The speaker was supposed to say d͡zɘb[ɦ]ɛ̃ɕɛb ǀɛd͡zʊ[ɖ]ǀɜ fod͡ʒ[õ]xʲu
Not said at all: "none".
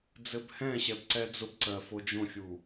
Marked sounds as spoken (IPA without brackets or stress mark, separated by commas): h, b, õ